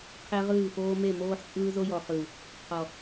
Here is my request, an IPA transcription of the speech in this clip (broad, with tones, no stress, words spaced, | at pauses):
qʰe˦ʁɯː˦˨foː˦ me˦˨moː˦ħt͡sʼɯː˦ zo˦jɔ˨χɯ˨ | qʰɔ˨